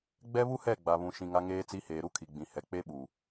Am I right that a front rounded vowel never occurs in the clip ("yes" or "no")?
yes